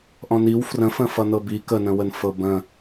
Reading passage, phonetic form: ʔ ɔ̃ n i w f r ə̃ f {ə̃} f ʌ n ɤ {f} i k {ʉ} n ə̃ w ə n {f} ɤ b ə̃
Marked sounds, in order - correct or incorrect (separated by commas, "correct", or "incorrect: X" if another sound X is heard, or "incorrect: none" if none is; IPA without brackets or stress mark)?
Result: correct, incorrect: b, incorrect: ə, correct